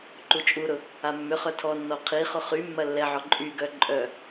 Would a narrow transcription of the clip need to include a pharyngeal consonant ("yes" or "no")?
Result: yes